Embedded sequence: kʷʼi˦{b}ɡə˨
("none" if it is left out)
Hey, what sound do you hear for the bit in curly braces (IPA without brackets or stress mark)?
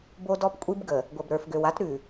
b